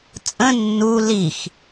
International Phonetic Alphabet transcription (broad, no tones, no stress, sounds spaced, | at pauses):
t͡sʼ ə̃ nː u l i x